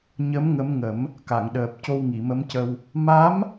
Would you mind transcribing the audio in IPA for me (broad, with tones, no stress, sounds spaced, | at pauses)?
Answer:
ɲ ə˧˥ m ŋ ə˧˥ m ŋ ə˨˩˦ m | k a˨˩˨ ŋ ɗ əː˨˩ p̚ c o˧ w ŋ i˨˩˨ m ə˧˥ m c ə˧ w | m a˧˥ m